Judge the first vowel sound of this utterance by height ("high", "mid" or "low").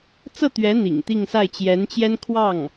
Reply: mid